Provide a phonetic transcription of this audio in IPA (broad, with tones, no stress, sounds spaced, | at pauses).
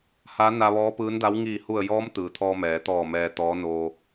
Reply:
h a˧˥ n a˧ ʋ ɔː˧˥ p ɯː˧˥ n d a˧˥ w ŋ iː˧˩ h u˧˩ ə̯ j ɔː˧˥ m t̪ ɯː˩ t̪ʰ ɔː˧ m ɛː˩˧ t̪ ɔː˧˩ m ɛː˧ t̪ ɔː˧˥ n oː˧